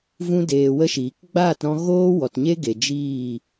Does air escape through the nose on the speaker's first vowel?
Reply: yes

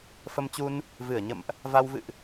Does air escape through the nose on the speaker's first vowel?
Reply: no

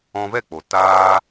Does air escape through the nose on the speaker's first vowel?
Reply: yes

